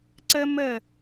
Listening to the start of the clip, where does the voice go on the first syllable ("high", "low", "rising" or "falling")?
high